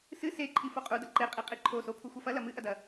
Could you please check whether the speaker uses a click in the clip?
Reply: yes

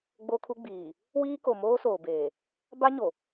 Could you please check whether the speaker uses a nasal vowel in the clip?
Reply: no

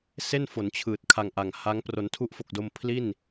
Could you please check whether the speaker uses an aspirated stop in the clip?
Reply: yes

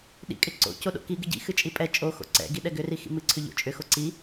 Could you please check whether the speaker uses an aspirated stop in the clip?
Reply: yes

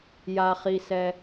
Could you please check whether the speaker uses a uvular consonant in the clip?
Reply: yes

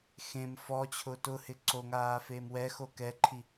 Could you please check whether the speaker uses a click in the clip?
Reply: yes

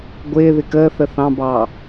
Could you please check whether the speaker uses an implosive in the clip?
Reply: no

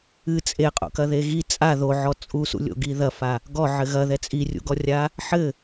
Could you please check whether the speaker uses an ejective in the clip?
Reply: yes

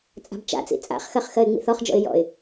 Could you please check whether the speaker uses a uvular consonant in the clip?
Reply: yes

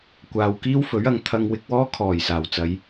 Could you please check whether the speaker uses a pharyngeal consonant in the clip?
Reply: no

